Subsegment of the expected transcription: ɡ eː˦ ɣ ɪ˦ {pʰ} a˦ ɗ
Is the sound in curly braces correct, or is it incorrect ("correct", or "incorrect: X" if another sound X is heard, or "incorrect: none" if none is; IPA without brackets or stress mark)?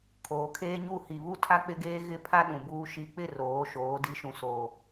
correct